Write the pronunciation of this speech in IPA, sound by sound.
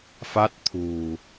fa˦˥t̚t̪ʰṳ˨˩

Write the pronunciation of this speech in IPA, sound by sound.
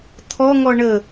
t̪ʰɔŋɔ ɳə

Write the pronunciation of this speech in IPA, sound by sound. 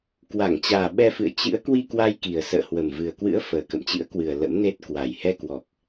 kwa˧˩ŋt͡ɕaː˨˩ ɓɛ˧fɨ̰˧˨ə̯ t͡ɕɨ̰˧˥ə̯ kwi˧kwa˧jki˨˩ə̯ sə̰ː˧˨hwə˨˩mvɨ˨˩ə̯kwɨ̰˧˥ə̯ fəː˨˩kə̰˧˨mt͡ɕɨ̰˧˥ə̯kwɨ˨˩ə̯ lə̰˧˥mne˦˥t̚ kwa˨˩jhɛ˧kwɔ˨˩k̚

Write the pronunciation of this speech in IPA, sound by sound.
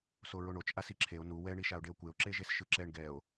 soɹoɳot͡ʃ ʔasiǁʰeo̯ nu wɛ ɳiʃao̯ɖeo̯kʷeo̯ ǁeʒesʃɯǁɛɳ ɡɛo̯

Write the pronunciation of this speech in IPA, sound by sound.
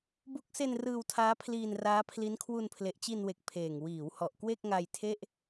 bu˦˥k̚se˧n rɯː˧wtʰaː˦˥pʰliː˧n raː˦˥ pʰli˦˥nkʰwu˧n pʰle˨˩ʔt͡ɕi˧nwe˨˩k̚ pʰeː˨˩ŋ wiː˩˦w hɔ˨˩ʔkwe˥˩k̚ŋa˧jtʰe˥˩ʔ

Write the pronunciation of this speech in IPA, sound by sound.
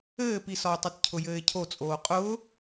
ɘːpisɒʊ̯tˤɘt cʰʊjɘːɪ̯cʰot͡sʼoː qʼʊː

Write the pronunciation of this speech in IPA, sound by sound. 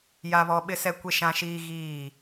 ja˦βɔ˦ ɓɪ˦sɛ˦kʷe˦ ʃã˦ʃiː˦ɣiː˦˨

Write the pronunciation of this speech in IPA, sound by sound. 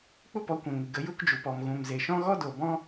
k͡pu˦pɔ˨˦kʷɛ̃˨ ŋɨ˨ɡə˨˦ ju˧kd͡ʒu˨pɔ˨m ɣũ˨mze˨ʃɔ̃˦ ɣɔ˦do˨bɔ̃˦

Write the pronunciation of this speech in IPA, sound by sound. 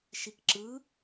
ʃikǁɯ

